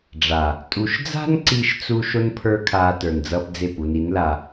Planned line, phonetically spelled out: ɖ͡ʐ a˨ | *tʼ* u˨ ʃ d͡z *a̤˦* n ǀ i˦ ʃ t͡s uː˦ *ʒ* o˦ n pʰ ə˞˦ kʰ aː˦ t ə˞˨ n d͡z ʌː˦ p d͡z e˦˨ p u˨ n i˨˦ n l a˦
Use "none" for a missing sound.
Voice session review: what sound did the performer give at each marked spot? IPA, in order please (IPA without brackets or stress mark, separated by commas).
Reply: tʼ, a̤˦, ʃ